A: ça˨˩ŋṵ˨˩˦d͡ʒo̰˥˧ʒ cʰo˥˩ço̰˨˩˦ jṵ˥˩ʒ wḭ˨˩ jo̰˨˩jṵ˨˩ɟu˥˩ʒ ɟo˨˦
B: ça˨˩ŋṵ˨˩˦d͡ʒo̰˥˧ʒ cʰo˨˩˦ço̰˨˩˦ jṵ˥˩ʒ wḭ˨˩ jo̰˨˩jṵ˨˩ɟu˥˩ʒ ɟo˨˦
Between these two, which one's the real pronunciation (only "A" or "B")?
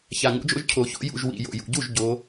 B